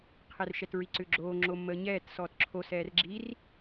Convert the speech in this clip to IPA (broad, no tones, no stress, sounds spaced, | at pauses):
qʰ ɛ r ʃ ɛ t ɹ i ǀ ʏ ɡ͡ǁ oː ŋ͡ǁ o mː əː ɲ ɛː t s ɔː t ǁʰ o s ɛː r ɡ͡ǁ i r